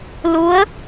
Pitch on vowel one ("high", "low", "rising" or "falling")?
rising